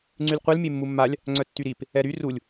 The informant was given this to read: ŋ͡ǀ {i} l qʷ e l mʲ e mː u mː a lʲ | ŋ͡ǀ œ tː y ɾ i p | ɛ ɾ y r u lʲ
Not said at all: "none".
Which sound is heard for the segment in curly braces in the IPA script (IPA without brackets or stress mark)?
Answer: y